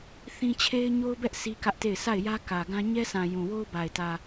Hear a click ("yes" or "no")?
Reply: no